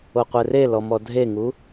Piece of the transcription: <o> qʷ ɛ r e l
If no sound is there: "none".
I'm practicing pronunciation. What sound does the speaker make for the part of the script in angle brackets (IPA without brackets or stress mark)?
o